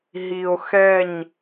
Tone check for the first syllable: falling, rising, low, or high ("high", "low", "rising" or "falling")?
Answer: low